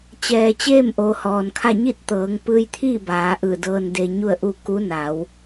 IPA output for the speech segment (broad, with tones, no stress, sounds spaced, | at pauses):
t͡ɕ ɛː˩ t͡ɕ eː˥˨ m ʔ oː˩˧ h ɔː˩ n kʰ a˥˨ ɲ i˥˨ t̚ t̪ ɤː˩˧ ŋ p ɯː˧ j t̪ʰ iː˥˨ b aː˩˧ ʔ ɯː˧˩ d ɤː˧ n d e˧ ɲ u˥˨ ə̯ ʔ u˥˨ k u˧˥ n a˩˧ w